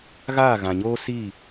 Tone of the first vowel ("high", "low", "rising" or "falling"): falling